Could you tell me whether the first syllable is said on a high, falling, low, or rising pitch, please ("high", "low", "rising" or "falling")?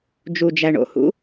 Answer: low